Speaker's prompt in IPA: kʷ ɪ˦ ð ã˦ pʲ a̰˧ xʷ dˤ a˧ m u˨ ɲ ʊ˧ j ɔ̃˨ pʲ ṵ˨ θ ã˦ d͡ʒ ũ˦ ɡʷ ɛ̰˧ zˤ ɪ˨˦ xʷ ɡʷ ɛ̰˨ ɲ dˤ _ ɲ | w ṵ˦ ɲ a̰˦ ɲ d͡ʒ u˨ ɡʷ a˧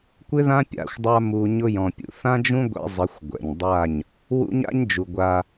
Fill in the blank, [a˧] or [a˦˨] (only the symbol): a˦˨